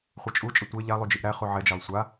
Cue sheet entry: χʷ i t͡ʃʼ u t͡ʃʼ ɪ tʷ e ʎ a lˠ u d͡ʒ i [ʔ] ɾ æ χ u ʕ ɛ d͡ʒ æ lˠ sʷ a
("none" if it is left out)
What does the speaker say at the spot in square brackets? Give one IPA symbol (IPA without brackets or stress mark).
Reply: ʔ